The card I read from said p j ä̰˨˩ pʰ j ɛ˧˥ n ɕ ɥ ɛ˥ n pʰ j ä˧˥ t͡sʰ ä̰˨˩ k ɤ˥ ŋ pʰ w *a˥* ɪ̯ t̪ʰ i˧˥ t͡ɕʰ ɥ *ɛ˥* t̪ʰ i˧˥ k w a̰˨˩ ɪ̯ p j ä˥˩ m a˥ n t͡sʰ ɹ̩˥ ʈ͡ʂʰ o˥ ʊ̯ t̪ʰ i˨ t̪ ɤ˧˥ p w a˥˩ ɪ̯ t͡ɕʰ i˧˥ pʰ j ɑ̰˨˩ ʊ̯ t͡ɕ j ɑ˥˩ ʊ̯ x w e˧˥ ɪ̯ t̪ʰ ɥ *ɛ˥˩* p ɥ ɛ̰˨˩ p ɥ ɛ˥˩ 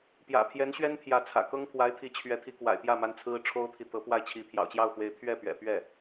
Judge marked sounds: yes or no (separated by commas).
no, no, yes